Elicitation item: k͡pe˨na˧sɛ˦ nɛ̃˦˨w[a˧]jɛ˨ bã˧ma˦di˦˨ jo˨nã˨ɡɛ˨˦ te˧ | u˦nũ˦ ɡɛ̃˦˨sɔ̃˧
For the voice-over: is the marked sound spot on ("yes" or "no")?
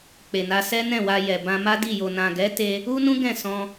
yes